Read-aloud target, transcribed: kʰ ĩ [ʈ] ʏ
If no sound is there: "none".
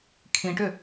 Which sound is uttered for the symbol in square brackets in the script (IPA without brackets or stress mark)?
ʈ